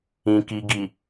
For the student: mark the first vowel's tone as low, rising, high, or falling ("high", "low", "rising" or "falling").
low